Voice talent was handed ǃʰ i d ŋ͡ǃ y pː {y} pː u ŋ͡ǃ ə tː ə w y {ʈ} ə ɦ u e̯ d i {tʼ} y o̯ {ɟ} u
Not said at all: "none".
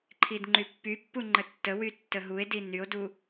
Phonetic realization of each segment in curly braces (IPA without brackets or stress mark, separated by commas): y, tː, n, d